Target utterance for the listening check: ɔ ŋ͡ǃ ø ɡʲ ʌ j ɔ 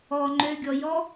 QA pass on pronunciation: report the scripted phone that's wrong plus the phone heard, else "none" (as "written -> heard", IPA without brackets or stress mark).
ʌ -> ɔ